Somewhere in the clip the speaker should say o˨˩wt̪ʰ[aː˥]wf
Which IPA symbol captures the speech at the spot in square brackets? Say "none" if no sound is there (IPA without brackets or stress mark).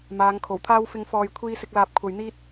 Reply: aː˥